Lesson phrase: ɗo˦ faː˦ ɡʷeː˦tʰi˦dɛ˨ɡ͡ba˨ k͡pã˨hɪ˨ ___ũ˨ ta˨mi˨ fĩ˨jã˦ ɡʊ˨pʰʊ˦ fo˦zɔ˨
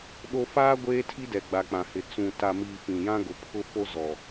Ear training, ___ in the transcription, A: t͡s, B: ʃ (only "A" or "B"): A